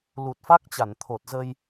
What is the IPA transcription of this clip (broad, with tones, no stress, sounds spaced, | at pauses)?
l u˨˩ t̚ f a˦˥ k̚ t͡ɕ a˧˩ n t̪ʰ o˨˩ t̚ z ə˧ j